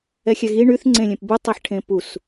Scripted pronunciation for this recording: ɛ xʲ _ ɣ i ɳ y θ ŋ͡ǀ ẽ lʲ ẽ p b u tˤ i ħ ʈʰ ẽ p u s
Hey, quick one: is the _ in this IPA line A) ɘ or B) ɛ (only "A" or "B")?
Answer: B